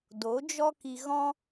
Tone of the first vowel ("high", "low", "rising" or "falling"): rising